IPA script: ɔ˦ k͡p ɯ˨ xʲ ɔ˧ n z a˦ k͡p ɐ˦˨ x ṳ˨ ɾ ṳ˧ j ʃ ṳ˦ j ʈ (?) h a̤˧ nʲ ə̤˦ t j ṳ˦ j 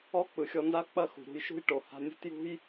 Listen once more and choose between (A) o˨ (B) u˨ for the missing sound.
A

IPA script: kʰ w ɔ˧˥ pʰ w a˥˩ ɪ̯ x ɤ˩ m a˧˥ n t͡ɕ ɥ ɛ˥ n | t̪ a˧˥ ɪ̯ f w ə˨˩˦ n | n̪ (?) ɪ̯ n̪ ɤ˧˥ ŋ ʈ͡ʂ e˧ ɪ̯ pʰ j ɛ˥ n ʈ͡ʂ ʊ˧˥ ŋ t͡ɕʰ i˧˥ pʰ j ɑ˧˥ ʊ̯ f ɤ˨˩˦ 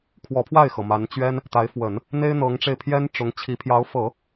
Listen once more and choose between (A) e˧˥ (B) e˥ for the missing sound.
B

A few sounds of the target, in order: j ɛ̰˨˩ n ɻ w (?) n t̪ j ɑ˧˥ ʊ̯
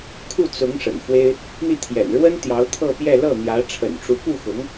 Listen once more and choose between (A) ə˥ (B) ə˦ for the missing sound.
A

